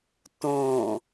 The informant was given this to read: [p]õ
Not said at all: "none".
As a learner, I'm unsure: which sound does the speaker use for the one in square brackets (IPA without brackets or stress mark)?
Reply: t